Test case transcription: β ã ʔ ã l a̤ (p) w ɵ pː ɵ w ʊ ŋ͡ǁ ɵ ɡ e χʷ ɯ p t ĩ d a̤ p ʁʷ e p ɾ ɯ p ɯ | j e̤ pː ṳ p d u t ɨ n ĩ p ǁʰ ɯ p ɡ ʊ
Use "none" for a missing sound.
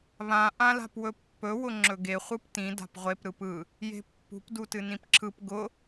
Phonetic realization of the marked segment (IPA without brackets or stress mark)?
p